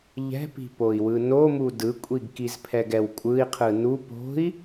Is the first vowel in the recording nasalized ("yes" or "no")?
no